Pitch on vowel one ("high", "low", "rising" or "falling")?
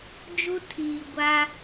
high